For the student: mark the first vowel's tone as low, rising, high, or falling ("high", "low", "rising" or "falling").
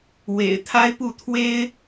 low